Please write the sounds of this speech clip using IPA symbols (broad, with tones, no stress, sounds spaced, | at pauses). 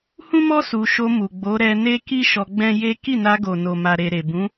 h ũ˦ m ɔ˦ s u˧ ʃ o˧ m u˨ ɡ͡b o˨˦ ɾ ɛ˧ n e˦ k i˦ ʃ ɔ˧ ɡ͡b ɛ̃˦ j e˦ k i˦˨ n a˧ ɡ o˨ n o˨ m a˨ ɾ e˨ ɾ e˨ b ũ˨˦